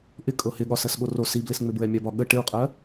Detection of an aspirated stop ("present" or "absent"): absent